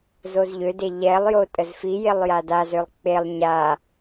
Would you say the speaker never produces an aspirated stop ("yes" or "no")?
yes